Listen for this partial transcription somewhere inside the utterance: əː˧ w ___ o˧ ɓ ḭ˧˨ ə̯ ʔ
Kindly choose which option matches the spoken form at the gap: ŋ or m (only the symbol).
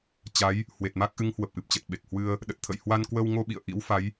ŋ